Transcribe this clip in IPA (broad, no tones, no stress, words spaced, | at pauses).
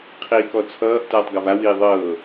qʰiːkɔt͡sʰʌːʔ tʌːtˤɡʌva wiːðˤɤː